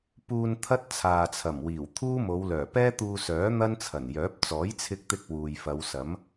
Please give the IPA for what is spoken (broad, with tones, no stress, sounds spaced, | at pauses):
p uː˧ n t̪ʰ ɐ˥ t̚ t͡sʰ aː˨ t͡sʰ ɐ˨˩ m w iː˨˩ w t̪ʰ uː˥ m o˨˧ w l œː˨˩ p ɛː˥ t̪ uː˧ s œː˨˥ n̪ ɐ˥ n t͡sʰ ɐ˨˩ n j œː˨˥ p̚ t͡s ɔː˨˥ j t͡sʰ ɪ˧ k̚ t̪ ɪ˧ k̚ w uː˨ j f ɐ˨˧ w s ɐ˨˥ m